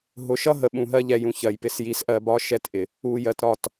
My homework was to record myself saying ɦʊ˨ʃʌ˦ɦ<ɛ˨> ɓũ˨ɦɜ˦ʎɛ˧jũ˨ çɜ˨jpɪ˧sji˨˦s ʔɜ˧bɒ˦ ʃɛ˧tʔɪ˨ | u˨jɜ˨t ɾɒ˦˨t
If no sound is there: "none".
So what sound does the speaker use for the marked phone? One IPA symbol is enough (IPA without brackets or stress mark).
ə˨